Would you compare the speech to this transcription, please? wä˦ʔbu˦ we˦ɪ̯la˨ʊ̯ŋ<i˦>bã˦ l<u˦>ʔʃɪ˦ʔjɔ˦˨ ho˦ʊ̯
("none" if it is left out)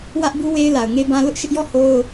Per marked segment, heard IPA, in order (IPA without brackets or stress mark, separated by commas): e˦, ʊ˦